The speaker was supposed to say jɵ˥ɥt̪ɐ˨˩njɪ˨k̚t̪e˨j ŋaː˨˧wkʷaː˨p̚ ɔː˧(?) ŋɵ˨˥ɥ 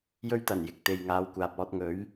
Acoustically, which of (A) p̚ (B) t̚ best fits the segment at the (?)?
B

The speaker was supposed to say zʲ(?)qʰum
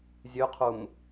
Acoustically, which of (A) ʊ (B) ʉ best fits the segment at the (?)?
B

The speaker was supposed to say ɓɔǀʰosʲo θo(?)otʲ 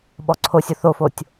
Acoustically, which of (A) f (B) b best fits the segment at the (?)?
A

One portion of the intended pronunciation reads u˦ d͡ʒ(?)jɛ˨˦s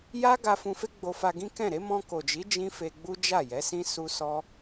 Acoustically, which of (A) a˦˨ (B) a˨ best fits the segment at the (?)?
A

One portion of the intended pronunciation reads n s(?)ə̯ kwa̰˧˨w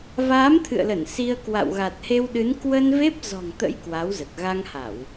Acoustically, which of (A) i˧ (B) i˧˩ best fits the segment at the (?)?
A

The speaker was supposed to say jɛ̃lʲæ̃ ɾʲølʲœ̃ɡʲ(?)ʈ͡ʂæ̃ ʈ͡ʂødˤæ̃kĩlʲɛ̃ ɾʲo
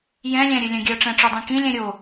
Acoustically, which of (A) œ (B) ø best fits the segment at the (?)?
A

